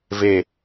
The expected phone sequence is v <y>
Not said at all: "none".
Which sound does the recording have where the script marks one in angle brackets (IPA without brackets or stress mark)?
e